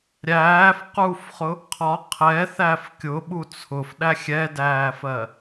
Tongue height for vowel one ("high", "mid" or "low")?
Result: low